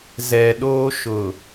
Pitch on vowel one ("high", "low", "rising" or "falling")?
low